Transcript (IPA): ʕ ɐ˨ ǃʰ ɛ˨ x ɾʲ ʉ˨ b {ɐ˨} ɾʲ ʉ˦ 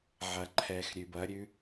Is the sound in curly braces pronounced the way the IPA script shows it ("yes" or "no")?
no